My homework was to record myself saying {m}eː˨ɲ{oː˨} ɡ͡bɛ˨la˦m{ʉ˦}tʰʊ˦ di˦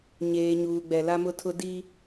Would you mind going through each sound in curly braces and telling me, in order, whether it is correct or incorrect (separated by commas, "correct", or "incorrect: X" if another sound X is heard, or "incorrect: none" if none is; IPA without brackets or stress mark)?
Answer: incorrect: ɲ, incorrect: uː˨, incorrect: ʊ˦